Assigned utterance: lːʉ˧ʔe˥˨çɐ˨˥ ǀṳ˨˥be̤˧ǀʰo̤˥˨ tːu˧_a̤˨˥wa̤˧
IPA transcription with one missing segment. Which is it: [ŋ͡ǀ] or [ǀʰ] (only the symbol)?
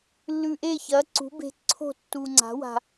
ŋ͡ǀ